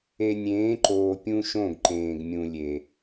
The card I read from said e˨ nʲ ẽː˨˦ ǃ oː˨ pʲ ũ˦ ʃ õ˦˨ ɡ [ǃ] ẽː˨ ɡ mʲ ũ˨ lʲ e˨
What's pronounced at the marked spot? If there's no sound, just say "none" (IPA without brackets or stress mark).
ǃ